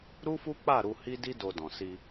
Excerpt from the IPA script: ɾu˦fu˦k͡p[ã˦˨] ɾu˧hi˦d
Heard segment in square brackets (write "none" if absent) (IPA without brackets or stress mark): a˦˨